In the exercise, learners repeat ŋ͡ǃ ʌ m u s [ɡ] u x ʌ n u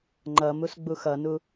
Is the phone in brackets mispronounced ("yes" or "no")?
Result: yes